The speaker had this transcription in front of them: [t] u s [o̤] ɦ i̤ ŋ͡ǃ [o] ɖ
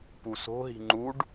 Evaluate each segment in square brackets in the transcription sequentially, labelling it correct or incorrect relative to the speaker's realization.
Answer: incorrect, correct, incorrect

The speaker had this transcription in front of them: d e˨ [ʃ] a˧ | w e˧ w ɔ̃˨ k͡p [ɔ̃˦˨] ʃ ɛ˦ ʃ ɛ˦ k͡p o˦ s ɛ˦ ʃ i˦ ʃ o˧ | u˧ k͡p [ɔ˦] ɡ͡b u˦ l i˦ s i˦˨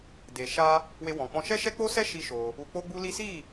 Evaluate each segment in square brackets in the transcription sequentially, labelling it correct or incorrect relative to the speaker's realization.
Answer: correct, incorrect, incorrect

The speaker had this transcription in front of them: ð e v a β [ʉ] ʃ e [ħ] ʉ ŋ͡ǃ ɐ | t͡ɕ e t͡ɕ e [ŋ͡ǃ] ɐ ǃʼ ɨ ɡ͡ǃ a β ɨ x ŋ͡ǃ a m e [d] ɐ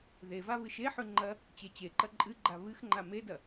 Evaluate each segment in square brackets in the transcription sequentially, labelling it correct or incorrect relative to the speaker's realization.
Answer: incorrect, correct, incorrect, correct

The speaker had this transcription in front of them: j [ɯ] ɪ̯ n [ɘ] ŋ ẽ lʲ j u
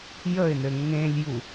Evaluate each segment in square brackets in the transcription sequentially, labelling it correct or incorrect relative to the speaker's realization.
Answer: incorrect, correct

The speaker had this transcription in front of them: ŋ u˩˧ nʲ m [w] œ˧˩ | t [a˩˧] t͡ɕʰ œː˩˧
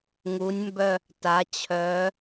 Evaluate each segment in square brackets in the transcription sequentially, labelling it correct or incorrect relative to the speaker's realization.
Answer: incorrect, correct

